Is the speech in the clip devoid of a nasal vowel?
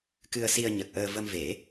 yes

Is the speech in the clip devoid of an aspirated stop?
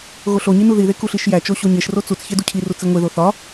no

